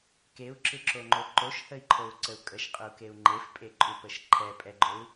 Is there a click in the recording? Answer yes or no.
yes